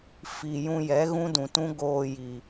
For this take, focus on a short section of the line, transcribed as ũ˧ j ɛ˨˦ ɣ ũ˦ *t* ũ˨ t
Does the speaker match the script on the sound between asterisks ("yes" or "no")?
no